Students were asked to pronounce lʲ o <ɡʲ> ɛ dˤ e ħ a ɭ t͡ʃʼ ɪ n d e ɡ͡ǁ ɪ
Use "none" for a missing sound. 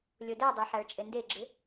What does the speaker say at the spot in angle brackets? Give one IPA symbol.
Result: d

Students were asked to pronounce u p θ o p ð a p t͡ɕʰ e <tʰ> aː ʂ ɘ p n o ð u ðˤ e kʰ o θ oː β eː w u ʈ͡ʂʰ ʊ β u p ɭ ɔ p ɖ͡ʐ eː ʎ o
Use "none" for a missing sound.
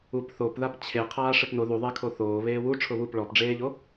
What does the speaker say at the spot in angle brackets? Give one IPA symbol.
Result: qʰ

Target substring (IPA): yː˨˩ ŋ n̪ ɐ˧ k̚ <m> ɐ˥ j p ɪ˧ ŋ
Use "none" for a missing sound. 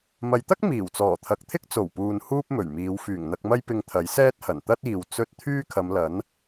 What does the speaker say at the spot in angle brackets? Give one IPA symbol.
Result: m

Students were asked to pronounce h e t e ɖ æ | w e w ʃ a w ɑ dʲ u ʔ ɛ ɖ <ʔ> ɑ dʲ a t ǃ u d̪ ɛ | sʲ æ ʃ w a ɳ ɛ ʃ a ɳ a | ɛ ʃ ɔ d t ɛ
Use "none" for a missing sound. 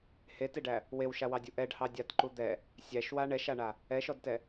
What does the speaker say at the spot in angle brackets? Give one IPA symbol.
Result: h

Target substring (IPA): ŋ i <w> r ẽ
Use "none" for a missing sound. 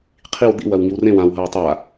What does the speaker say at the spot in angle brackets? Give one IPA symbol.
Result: w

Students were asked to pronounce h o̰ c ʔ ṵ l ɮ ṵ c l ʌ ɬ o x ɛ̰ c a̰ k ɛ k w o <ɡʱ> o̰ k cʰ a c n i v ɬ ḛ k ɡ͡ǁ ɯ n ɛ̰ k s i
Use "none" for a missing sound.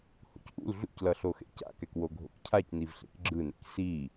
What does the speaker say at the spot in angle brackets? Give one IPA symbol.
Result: ɡʱ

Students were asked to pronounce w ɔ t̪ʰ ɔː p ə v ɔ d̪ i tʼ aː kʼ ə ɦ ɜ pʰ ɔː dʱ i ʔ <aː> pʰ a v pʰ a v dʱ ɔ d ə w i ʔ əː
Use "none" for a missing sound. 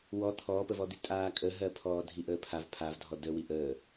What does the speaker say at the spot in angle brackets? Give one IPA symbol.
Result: əː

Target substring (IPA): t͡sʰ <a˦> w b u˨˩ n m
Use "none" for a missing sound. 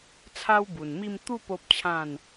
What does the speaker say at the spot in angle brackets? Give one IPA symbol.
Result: a˦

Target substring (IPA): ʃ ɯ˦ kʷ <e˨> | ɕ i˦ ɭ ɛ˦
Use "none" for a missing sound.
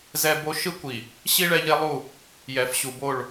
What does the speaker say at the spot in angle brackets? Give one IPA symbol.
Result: i˨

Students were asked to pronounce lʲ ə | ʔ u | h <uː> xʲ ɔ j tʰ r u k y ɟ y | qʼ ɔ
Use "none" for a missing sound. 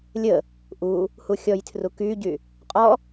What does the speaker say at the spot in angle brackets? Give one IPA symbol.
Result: u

